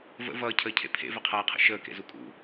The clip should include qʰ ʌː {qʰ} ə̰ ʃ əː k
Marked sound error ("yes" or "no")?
no